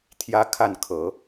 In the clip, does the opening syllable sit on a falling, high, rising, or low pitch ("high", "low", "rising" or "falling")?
high